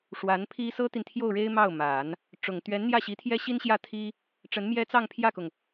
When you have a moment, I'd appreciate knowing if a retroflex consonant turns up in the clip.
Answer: yes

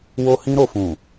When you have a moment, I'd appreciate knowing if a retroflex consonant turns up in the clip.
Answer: no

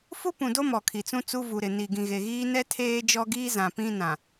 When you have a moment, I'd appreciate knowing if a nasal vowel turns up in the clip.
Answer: yes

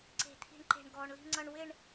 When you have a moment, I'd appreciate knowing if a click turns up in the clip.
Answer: yes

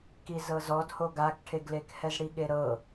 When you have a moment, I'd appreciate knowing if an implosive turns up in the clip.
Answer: yes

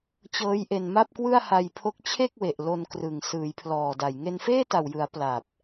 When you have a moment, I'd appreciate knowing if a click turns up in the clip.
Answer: no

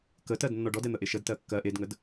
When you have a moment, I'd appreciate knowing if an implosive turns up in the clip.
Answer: no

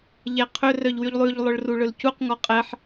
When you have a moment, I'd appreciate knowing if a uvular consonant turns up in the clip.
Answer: yes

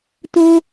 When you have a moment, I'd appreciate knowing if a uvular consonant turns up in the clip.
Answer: no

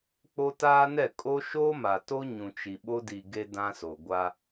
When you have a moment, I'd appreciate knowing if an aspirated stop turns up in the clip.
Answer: no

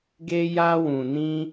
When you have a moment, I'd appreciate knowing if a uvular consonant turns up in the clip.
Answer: no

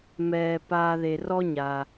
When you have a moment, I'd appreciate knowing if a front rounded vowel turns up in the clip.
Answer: no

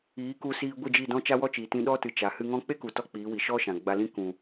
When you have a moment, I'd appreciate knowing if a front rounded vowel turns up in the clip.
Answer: no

